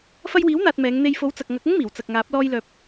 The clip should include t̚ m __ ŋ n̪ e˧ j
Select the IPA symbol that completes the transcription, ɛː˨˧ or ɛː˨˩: ɛː˨˧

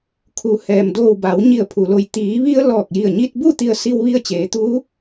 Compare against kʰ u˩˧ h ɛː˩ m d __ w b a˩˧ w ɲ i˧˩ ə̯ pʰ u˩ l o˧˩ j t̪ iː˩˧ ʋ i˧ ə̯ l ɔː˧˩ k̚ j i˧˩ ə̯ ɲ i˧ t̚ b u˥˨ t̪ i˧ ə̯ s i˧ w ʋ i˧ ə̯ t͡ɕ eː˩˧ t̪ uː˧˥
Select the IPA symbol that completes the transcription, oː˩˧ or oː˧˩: oː˧˩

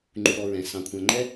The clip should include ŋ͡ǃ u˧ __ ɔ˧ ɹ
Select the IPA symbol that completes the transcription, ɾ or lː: ɾ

